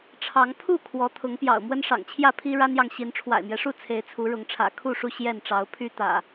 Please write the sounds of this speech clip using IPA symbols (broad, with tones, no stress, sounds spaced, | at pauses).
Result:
ʈ͡ʂʰ ɑ˨˦ ŋ pʰ u˥˨ kʰ w ɔ˨˦ t̪ʰ ʊ˨˦ ŋ p j ɑ̰˨˩ ʊ̯ m w ə˦ n ʂ ɑ̰˨˩ ŋ t͡ɕʰ j ä˥˨ pʰ i˦ ɻ a˦ n j ɑ˨ ŋ ɕ i˨˦ n ʈ͡ʂʰ w a̰˨˩ ɪ̯ m j ɛ˦ ʂ u˥˨ t͡sʰ e˨˦ ɪ̯ t͡sʰ u˨˦ ɻ ʊ˨˦ ŋ ʈ͡ʂʰ ä̰˨˩ kʰ u˥˨ ʂ u˥˨ ɕ j ɛ˥˨ n ʈ͡ʂ ɑ˨˦ ʊ̯ pʰ y˦ t̪ ä̰˨˩